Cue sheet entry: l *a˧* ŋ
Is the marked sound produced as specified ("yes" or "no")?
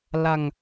yes